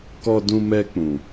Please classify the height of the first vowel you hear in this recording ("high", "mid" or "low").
mid